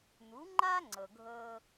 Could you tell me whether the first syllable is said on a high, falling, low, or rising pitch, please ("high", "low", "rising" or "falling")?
rising